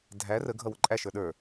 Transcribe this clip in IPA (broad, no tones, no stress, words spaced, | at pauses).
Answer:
dʱæ rə ɡʱʌwʊǃʼæ ʃə˞ɗə˞